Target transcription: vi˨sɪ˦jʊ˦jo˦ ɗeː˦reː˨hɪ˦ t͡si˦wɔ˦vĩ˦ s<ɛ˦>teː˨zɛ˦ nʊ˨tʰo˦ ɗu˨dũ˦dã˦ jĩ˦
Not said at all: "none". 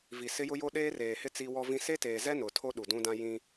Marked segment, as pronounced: e˦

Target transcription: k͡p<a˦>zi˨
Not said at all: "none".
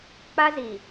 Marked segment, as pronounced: a˦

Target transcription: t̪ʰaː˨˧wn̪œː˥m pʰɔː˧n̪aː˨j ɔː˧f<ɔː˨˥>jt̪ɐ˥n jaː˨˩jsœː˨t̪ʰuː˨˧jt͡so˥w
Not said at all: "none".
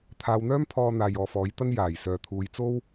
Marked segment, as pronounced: ɔː˨˥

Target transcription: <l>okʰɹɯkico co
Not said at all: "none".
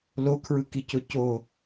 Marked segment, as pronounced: l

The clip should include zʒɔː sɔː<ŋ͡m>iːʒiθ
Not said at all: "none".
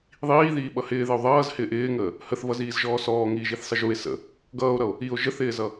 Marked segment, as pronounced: ŋ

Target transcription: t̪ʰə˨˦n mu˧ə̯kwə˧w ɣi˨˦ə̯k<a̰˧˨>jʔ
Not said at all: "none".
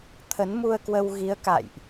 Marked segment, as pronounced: a̰˧˨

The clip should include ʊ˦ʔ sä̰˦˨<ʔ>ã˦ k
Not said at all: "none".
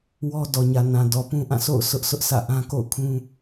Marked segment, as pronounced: ʔ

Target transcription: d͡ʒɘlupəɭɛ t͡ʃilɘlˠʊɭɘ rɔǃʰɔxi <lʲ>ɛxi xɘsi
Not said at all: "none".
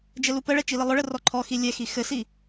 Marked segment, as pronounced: lʲ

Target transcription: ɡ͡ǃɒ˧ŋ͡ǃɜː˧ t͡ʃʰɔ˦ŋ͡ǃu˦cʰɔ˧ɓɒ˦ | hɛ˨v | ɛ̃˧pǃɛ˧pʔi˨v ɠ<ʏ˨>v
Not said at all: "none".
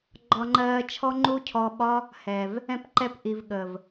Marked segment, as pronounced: ə˨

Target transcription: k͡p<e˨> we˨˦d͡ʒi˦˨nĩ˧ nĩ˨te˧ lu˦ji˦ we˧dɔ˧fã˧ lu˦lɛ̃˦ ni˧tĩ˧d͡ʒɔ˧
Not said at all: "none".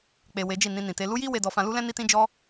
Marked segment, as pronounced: e˨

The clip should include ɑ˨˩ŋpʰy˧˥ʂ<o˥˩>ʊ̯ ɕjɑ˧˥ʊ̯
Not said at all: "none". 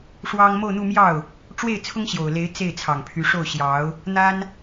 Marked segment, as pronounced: o˥˩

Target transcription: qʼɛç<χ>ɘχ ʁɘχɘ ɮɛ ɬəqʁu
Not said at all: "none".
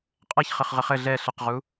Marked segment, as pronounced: χ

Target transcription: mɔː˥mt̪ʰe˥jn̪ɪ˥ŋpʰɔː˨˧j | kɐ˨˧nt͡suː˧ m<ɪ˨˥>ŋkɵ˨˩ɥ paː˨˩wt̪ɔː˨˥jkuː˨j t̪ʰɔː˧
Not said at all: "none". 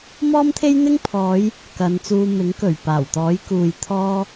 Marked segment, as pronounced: ɪ˨˥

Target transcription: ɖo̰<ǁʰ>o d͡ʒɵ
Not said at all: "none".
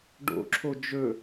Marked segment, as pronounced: ǁʰ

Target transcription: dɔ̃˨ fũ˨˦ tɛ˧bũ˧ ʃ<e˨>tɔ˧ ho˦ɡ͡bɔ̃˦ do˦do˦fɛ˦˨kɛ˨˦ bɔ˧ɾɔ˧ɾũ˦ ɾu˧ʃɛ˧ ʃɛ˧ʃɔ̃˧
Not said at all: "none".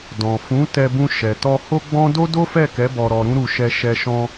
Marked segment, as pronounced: ɛ˨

